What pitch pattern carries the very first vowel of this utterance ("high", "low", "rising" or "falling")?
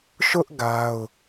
high